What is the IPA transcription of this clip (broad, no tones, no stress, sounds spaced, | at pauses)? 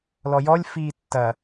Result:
l ɔ j ɔ lʲ f iː tː ɐ